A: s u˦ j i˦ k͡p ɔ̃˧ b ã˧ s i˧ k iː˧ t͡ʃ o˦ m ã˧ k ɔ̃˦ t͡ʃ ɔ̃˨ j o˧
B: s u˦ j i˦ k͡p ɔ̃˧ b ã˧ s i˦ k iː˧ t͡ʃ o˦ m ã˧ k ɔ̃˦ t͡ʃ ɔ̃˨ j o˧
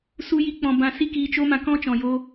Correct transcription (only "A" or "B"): B